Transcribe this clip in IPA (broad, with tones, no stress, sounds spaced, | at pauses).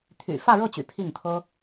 t̪ʰ y̰˨˩ f ä˥˧ ɻ ɤ˥˩ t͡ɕ y̰˨˩ pʰ i˥˩ ŋ t̪ʰ ɤ˥